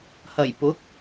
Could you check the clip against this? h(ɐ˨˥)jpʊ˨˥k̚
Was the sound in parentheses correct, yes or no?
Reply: no